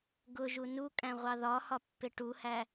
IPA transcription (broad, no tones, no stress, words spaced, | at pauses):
ɡʊʒu nukʼæ̃ ʁʷɑðɒhɒ pːɪʈuhæ